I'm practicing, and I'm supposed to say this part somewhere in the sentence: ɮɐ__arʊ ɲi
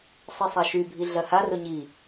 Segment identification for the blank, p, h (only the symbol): h